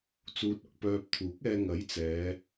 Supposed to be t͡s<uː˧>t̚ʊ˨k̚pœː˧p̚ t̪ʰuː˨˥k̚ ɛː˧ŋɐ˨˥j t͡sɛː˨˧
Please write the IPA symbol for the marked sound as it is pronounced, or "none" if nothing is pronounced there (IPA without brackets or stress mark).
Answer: uː˧